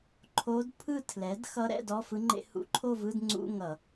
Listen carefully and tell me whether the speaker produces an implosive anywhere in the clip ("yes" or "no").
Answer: no